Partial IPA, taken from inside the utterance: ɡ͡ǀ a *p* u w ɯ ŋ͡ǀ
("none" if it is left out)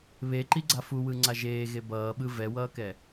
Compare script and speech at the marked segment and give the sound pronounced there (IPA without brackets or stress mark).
f